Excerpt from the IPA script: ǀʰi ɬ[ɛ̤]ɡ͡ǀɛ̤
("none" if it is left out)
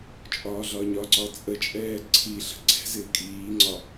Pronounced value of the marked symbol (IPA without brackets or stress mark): ə̤